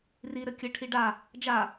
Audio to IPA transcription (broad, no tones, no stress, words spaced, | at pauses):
ri ɾɘkʲɘʈʰi ɖa | d͡ʒa